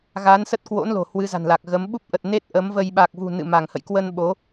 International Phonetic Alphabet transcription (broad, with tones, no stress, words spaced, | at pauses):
ɣa˨˦nsə˦˥t̚kwo̰˧˥nlo̤˨˩ hwɨ˨˦za̤˨˩nla˨˩k̚ɣə˨˦m ɓu˦˥p̚ʔə˨˩t̚ ne˦˥t̚ ʔə˨˦mvə˧j ɓa˨˩k̚vṳ˨˩ nɨ̰˧˨ma˧˩ŋhə̰˧˨j kwə˧n ɓo˨˦